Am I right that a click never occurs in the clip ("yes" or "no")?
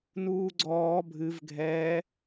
no